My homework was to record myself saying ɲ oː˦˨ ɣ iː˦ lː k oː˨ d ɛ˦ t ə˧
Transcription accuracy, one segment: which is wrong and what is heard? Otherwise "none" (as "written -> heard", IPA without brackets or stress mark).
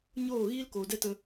lː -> l